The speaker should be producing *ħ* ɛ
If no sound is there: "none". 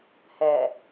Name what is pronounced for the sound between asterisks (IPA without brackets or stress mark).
h